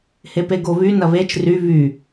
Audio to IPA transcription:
hepeɡoβy nɐβet͡ʃ ry βy

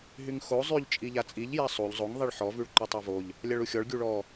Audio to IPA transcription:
ɦyŋxo zˤyʎ t͡ʃʼiʎat͡sʼiʎ jasˤuʎ zˤoŋ ðˤiɭħɔ vyɭǃotˤovoʎ | lʲaɭuxʲɔɭ ɡʲuɭɔ

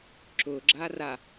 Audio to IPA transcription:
ǁʊɡ͡ǁa ra

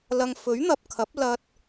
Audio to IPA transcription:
lɐ˧ŋ fɵ˨˥ɥn̪ɐ˨p̚kʰɐ˨˥p̚ lɐ˧t̚

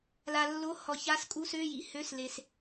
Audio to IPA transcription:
la˨lːo˧˥˧ hɔ˨ça˧˥˧s kʼu˧˥˧sø˧˥˧jḭ˨ hø˧˥˧sle˨s

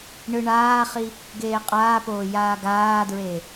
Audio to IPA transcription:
ɳɯɳaːχi | ɡeːqʼaːpoː jaːɡaːdɹe

